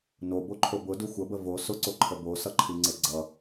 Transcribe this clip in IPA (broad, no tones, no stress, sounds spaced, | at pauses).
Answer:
n o b o ǃʰ o b ʊ d u xʷ ə b ə v o s ʊ ǀ o ǃʰ ə b o s ʌ ǃʰ i ŋ͡ǀ e ɡ͡ǀ ʌ